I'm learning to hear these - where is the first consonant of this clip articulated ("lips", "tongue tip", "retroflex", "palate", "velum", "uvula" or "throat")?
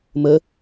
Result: lips